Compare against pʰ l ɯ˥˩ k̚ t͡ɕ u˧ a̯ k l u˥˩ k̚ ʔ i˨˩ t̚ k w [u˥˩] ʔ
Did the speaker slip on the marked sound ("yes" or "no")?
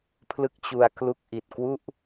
no